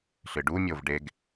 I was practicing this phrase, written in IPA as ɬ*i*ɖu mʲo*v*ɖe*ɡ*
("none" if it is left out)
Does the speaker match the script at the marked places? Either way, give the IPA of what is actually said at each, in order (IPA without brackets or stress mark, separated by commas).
ɨ, v, ɡ